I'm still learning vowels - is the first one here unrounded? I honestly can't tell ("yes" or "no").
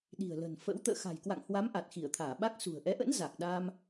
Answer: yes